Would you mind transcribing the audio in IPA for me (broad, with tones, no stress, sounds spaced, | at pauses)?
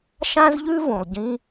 ʃ ã˥ z ʎ ʉ˥ v ũ˩ lˠ ɟ ĩ˥